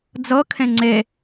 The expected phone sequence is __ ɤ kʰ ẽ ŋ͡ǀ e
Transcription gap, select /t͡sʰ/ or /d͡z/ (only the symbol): d͡z